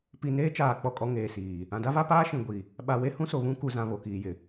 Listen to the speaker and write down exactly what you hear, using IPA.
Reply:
p i˨ n eː˦ t͡ʃ aː˨ k͡p ɔ˦˨ kʼ ɔ˦ ŋ eː˨ s iː˨ | ã˨ d a˦ v a˦ p aː˦ ʃ ĩ˨ ɡʷ i˨ | ɓ a˨ w e˦ h ũ˦ s o˨ β ũ˦ k u˨ z ã˨ β o˨ k iː˨ j ɪ˨

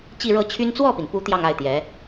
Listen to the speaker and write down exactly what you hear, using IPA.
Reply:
t͡ɕ i˥˧ ɻ ɤ˥˩ t͡ɕʰ y˥ n t͡s w ɔ˥˩ p i˩ n p u˧˥ t̪ j ɑ˥˧ ŋ a˥˩ ɪ̯ t̪ j ɛ˧˥

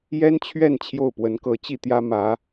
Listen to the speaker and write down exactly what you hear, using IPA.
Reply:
j ɛ˥ n t͡ɕʰ ɥ ɛ˥˧ n t͡ɕʰ j o˥˩ ʊ̯ p w ə˧˥ n k ɤ˧˥ t͡ɕ i˥˩ t̪ j ä˥ m ä˧˥

